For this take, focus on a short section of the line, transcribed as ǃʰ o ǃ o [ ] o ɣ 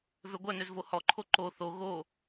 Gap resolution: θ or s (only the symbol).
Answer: θ